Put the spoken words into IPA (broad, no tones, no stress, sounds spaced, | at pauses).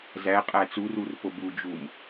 z æ qʼ æ t͡s u r u r p o b u d͡ʒ u m